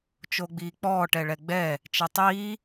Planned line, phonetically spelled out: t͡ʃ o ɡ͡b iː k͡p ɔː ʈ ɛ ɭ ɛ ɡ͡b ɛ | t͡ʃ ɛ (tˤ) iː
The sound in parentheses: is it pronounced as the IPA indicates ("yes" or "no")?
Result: yes